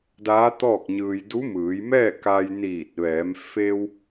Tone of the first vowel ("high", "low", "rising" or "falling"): rising